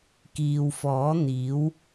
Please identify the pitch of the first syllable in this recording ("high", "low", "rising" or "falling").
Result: low